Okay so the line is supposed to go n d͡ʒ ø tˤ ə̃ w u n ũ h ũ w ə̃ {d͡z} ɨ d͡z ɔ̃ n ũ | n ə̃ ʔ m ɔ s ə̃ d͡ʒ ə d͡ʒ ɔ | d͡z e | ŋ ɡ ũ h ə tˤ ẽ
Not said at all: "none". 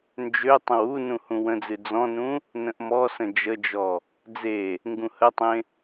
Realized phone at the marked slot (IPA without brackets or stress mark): d͡z